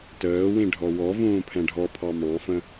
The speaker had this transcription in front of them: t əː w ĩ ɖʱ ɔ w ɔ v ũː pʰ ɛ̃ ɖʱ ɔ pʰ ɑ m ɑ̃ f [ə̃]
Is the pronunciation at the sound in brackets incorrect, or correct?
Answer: correct